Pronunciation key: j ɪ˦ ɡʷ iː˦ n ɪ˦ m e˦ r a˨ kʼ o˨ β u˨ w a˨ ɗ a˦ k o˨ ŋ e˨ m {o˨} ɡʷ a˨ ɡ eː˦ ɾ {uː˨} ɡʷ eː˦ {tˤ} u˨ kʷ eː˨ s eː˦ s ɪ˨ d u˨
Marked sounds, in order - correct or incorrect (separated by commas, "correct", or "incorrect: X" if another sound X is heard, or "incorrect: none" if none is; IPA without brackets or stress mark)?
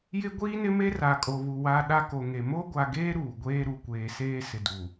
incorrect: o˦, correct, incorrect: ɾ